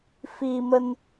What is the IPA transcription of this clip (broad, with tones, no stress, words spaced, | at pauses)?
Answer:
fi˧mə˧n